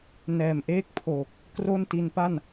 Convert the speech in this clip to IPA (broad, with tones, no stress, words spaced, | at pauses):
nɛː˨˩mʔeː˥˩k̚pʰoː˨˩k̚ | kro˥˩nti˧n pa˥˩n